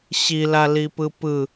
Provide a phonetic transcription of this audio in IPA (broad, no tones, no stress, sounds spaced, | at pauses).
ɕ i l a l i p ɯ p ɯ